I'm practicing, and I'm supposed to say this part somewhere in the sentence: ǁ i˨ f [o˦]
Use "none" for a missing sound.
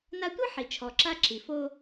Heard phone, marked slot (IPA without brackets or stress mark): o˦